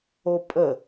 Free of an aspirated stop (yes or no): yes